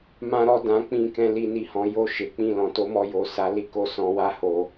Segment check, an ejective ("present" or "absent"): absent